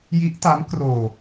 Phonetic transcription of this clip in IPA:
j i˦˥ ʔ t a˦˥ m k r oː˧

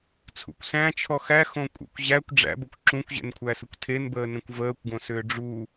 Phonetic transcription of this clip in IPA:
t͡sʰ ṵ kʷ s æ̃ t͡ʃʰ ɔ x æ x õ kʷʼ ɛ̰ kʷ ʑ æ kʷ ɖ͡ʐ æ̰ b o kʷ ǁ ũ kʷ ʑ ɛ̰ n kʷʰ æ s ə kʷ tʰ e n b əː n ẽ kʷ v əː kʷ ɡ õ s ʏː ɖ͡ʐ u

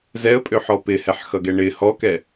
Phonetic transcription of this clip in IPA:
z ɛ ə̯ pʼ ø ħ ɔ p ɪ h ɛ ħ x ʌ ɡ ɛ ɳ ɪ h ɔ k ɛ

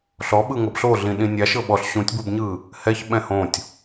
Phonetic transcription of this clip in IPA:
ɬ ɔ ɓ ɯ ŋ ɤ b ɬ o ɮ ĩ ɗ ĩ nʲ a ʃ ɤ ɓ ɔ ɬ ɕ ũ tʲ b u b ɲ ɯ | h ɛ ç ɓ ɛ̃ h õ tʲ

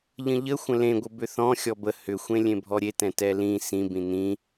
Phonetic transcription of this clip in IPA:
ʎ ə̃ ʎ ə xʷ ə̃ l ẽ ɡʷ ə b ʏ θ ɔ̃ xʲ ɔ b ə h ʏ xʷ ẽ lʲ ẽ bʱ ɔ ɾʲ e t ɛ̃ t ɛ l ĩ s ĩ b ĩ n ĩ

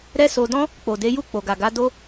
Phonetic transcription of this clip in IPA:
ɾ ɛ˦ s o˧ d ɔ̃˦ | k͡p o˨ d e˨˦ j u˦˨ k͡p o˨ ɡ a˨ ɡ a˨˦ d o˦

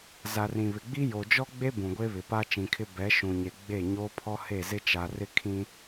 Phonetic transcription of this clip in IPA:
z a˨ r ĩ˨ β ɪ˨ ɡ͡b i˦ j o˨ d͡ʒ ɔ˦ ɡ͡b e˦ b ũ˨ ɡʷ e˦ β ɪ˨ p a˦ t͡ʃ ĩ˨ kʰ ɪ˦ b ɛ˨˦ ʃ ũ˨ ɲ e˨ ɡ͡b e˦˨ ɲ oː˦ pʰ ɔ˦ h e˦˨ z ɪ˦ t͡ʃ a˨ r ɪ˦ kʰ ĩ˦

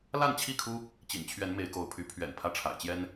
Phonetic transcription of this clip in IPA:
l a˥˨ n t͡ɕʰ i˥˨ kʰ u˦ | t͡ɕ ḭ˨˩ n t͡ɕʰ ɥ ɛ˨˦ n m e˨˦ ɪ̯ k o˨˦ ʊ̯ pʰ y˨˦ pʰ ɥ ɛ̰˨˩ n pʰ ä˦ ʈ͡ʂʰ a̰˨˩ ɪ̯ t͡ɕ j ɛ˦ n

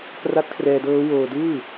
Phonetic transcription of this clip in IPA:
k r a˦˥ t̚ kʰ r ɛː˧ d ɤː˦˥ w oː˧ d ɯː˥˩

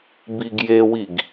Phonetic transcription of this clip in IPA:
b i ɡ j e w i ɡ

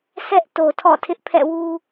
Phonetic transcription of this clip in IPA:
sʰ ɛ˦ ʔ t o˨ tʰ ɔ̰˦˨ tʰ ɪ˦ ʔ pʰ ɛ̰˦˨ w u˦

